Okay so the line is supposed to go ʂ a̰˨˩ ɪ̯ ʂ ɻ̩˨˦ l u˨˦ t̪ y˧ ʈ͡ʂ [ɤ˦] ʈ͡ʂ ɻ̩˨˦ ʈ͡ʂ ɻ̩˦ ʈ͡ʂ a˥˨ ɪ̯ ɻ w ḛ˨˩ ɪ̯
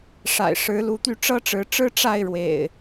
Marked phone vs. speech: correct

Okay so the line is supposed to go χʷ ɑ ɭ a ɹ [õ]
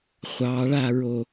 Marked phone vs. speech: incorrect: o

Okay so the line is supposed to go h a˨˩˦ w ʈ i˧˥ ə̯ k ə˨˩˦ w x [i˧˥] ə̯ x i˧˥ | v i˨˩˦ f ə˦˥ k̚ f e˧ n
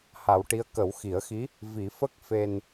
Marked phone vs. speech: incorrect: i˨˩˦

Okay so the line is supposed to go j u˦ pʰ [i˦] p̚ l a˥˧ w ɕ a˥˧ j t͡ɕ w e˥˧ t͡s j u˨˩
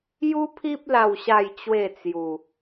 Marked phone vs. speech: correct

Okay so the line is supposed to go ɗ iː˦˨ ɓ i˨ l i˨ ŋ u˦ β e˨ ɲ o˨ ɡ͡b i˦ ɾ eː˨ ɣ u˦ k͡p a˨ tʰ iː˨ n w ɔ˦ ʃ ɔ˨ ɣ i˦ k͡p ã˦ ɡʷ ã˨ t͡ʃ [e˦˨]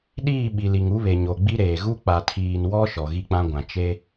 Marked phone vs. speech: incorrect: e˦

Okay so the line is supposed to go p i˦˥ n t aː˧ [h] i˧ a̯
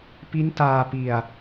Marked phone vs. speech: incorrect: p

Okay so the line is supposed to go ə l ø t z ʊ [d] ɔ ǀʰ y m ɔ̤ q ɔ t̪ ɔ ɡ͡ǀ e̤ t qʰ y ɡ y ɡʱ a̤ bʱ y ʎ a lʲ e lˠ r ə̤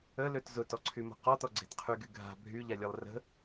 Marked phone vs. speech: incorrect: t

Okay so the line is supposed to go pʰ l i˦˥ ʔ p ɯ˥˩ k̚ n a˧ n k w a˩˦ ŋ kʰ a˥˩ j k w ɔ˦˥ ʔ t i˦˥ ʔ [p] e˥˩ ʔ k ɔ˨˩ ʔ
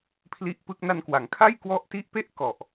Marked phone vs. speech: correct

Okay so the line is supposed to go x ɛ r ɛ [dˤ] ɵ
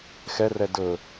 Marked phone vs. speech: incorrect: d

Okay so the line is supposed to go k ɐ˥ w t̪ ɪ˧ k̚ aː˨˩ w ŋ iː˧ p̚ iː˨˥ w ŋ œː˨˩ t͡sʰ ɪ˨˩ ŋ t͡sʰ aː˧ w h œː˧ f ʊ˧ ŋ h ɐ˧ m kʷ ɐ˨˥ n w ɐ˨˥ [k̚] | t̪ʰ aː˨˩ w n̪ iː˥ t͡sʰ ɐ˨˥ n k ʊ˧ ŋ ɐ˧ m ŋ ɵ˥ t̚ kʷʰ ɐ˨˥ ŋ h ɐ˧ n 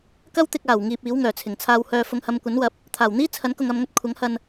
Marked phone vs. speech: incorrect: p̚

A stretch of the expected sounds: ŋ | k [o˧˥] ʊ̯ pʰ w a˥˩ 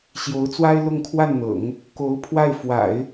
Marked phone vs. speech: correct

